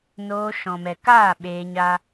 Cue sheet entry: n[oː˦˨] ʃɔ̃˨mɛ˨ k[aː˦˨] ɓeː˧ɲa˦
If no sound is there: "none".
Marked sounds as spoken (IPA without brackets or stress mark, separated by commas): oː˧, aː˦˨